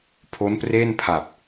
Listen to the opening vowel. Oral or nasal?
oral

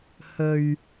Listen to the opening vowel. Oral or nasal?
oral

